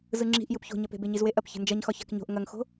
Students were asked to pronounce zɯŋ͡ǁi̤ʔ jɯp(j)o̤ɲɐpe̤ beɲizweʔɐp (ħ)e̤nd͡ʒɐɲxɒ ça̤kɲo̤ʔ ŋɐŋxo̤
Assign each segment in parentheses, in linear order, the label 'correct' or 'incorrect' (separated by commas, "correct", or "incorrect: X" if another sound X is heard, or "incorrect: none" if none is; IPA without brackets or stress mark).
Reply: incorrect: ç, incorrect: ç